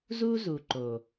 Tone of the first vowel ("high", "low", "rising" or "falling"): high